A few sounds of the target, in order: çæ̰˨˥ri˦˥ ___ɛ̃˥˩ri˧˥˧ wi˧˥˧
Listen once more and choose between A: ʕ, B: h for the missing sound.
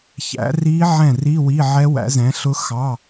A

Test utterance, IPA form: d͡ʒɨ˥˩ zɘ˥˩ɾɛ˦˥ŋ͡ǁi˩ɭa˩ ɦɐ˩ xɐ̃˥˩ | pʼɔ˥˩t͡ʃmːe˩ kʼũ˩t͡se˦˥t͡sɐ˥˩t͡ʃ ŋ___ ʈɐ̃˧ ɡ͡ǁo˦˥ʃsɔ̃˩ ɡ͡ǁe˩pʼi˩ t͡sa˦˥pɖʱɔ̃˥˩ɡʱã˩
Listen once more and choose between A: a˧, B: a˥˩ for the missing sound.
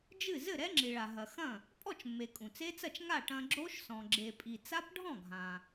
B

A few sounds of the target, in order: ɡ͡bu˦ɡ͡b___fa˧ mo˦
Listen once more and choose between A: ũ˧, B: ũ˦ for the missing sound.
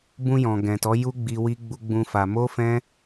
B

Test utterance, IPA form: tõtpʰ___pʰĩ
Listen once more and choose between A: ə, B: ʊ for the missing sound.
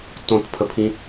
A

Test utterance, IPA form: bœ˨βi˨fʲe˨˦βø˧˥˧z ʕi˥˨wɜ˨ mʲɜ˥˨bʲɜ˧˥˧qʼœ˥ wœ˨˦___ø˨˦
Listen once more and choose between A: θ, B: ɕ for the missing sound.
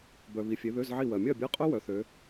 A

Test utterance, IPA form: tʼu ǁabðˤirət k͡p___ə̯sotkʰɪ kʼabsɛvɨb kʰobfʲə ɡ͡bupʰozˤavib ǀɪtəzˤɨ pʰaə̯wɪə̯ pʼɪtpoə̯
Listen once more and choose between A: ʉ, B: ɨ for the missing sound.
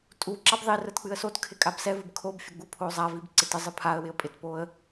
B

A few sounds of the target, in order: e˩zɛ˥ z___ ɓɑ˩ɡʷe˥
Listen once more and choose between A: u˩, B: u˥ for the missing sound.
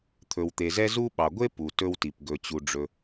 B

